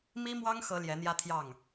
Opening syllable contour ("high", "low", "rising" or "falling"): high